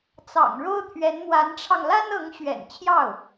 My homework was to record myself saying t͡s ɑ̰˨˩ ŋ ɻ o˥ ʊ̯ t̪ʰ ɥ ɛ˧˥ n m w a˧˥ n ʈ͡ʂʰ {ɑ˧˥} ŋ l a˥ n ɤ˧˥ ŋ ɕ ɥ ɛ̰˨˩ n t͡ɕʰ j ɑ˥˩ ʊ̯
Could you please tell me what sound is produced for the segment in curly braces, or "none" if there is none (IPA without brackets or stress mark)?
ɑ˧